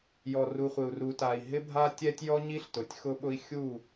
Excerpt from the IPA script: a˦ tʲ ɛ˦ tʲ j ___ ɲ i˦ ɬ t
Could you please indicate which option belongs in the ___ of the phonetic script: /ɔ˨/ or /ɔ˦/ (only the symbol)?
ɔ˦